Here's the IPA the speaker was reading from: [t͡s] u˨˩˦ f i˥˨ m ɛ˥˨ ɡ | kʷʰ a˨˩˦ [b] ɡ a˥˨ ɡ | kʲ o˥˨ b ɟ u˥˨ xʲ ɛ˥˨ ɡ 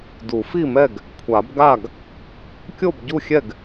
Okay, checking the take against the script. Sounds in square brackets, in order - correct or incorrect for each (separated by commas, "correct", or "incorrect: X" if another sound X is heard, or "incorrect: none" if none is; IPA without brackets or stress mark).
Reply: incorrect: d, correct